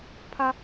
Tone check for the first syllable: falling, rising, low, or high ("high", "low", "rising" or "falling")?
high